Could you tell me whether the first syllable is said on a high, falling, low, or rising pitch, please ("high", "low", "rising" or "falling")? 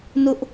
high